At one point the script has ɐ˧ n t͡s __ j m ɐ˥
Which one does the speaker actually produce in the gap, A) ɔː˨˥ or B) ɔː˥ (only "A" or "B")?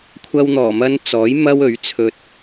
A